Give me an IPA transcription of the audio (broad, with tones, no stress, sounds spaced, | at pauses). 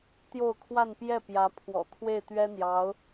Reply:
t̪ j o˥˧ ʊ̯ kʰ w a˥˧ n p j ɛ˥˩ p j ä˧˥ pʰ w ɔ̰˨˩ t̪ʰ w e˥˩ ɪ̯ t̪ ɥ ɛ˥ n̪ j ɑ˧˥ ʊ̯